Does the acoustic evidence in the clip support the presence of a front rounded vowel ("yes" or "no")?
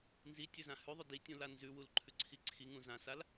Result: no